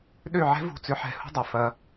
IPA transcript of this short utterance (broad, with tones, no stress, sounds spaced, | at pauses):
ɗ ø˦˨ ʕ ɛ̤˦ v ṳ˦˨ t͡s ʏ˦ ħ ɛ̤˦˨ h ṳ˦ dˤ ɛ˨ f ɐ˦